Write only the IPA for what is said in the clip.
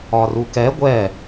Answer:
ɒ r u k ɛ ɡʷ ɛ

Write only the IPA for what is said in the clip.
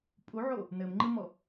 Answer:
pʼ u ʕ o | n ɘ m ŋ͡ǃ ɨ m ɔ

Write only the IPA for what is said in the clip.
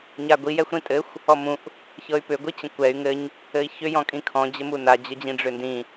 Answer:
ɲ a ɡʷ i j ɛ xʷ ɾ ĩ tʼ ɘ xʷ | ɔ m ũ ʔ | ç ɤ y̯ p ʏ ɡʷ i t͡ɕ ə̃ kʷ ɛ y̯ ŋ ɘ ɲ | ɘ i̯ ç ʏ j ɔ̃ kʼ ĩ kʰ ɔ̃ d͡ʑ ɘ m u n a d͡ʑ ə d͡ʑ ĩ ɖ͡ʐ ʏ n d ĩ

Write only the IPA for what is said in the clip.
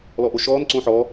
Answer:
l ɔ ʔ o ʃ ɔː n ǀ õ ħ ɔ

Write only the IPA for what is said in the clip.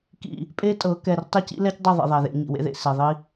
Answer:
k ḭ˨ | pʼ e˦ tʼ ɤ˨˦ k ɛ˨ r tˤ e˦ c ḭ˦ l ɛ˦ c dˤ ɐ˦˨ ðˤ ḭ˨ ðˤ ɛ˨ ð ḛ˨˦ ɲ ḭ˨ w ḛ˦ ð ḛ˨ s e˨ ðˤ i˦

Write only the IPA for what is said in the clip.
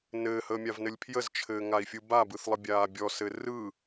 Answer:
n ɘː h əː mʲ a v n ɘ lʲ pʰ j ə z t͡ʃʰ ɘː ŋ a i̯ fʲ ɯ b a b ɯ θ lˠ ə bʲ aː bʲ ɔ s ɘ r ɯ

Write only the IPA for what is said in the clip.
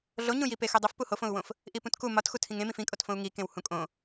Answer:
ɮ o ɲ ũ j i p e x u dˤ o f p u h o f õ u̯ w õ f | ʔ i p ũ t k u m ɒ t x u tʰ ĩ ŋ ẽ m ĩ f ĩ kʼ o t f õ u̯ ŋ i k ẽ w h ũ kʼ õ

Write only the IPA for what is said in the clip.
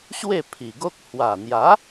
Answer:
ɕ w e˥˧ pʰ i˨˩ ɡ o˦ k̚ h w a˨˩ n̪ j a˨˦

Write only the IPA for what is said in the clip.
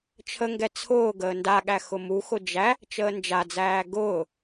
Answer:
t͡ʃʰ ə ŋ ɡ ɛ t͡sʰ ʊː ɡ əː n d a ɠ æ x ʊ m u x ʊ d͡ʒ æ | t͡ʃ əː n d͡ʒ a d͡z æː ɡ ʊː

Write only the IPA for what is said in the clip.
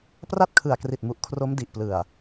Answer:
p r a˥˩ t̚ kʰ ɯ˨˩ a̯ k r i˨˩ t̚ m u˨˩ ʔ kʰ r o˦˥ m d i˨˩ ʔ p l ɯ˨˩ a̯

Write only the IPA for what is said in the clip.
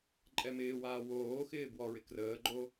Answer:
ǃʼ ɛ m ɪː w aː w oː x ɪː b w ɔ ɹ ɪ k r əː ɡ͡ǃ o

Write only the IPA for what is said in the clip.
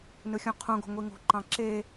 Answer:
n ɯ xʲ ũ qʰ ũ ɡ o̤ ŋʷ i ŋ o̤ ǃ ɑ̃ ǁ e

